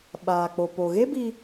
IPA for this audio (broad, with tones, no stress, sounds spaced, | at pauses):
ɓ aː˨ k͡p o˨ p o˨ ɣ e˦ b i˧